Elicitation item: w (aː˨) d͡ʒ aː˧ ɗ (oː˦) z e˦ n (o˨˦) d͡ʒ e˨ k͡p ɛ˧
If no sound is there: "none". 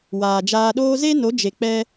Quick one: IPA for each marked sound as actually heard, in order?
aː˨, oː˦, o˨˦

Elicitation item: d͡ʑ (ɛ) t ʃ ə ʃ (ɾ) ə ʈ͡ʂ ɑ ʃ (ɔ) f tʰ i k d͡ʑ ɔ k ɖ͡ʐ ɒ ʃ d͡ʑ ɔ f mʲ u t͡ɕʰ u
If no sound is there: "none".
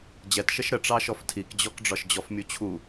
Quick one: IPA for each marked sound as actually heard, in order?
ɛ, ɾ, ɔ

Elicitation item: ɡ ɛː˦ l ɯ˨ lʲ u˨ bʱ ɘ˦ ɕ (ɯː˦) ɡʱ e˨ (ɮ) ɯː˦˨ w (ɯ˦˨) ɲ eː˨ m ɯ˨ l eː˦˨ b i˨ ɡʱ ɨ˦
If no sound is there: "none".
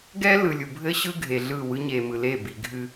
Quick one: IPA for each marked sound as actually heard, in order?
ɯ˦, ɮ, ɯ˦

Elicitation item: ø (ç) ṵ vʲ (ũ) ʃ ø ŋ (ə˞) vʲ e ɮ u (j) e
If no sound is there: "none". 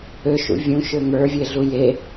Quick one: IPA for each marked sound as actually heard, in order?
ʃ, ũ, ə˞, j

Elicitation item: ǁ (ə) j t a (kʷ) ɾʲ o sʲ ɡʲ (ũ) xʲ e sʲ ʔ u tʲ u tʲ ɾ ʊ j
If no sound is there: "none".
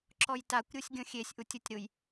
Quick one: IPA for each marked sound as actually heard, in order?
ɔ, kʷ, õ

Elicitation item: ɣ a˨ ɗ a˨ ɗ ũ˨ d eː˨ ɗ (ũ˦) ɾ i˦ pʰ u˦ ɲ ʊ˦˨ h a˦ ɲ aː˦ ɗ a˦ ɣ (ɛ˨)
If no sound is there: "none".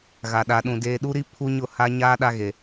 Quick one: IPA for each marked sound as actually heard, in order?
u˦, e˨

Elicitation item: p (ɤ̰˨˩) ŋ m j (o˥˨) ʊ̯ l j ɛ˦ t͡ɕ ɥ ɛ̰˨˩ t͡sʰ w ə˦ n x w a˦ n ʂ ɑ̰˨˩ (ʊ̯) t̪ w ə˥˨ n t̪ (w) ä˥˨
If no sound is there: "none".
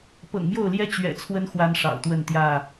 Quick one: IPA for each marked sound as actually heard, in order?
ɤ̰˨˩, o˥˨, ʊ̯, j

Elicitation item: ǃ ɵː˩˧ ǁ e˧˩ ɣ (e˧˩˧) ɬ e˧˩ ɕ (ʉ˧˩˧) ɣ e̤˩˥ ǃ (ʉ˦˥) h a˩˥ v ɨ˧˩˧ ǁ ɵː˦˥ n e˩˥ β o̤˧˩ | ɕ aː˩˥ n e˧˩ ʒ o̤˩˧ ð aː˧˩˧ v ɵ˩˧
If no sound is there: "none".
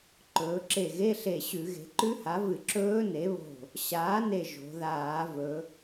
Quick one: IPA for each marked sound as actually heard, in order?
e˧˥˧, ʉ˧˩˧, ʉ˦˥

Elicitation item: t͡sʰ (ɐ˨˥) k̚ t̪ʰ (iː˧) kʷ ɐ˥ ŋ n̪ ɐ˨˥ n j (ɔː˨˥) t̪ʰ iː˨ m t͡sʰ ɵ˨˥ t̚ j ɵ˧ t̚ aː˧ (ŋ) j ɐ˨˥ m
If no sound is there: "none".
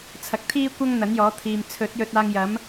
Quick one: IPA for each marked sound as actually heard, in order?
ɐ˨, iː˥, ɔː˨˥, ŋ

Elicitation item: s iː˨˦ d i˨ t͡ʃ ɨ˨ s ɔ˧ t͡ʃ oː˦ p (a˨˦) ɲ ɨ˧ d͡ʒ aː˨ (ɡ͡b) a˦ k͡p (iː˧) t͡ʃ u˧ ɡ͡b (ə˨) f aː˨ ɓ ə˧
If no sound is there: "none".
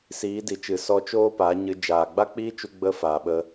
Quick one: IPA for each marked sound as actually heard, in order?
a˨˦, ɡ͡b, iː˦, ə˧

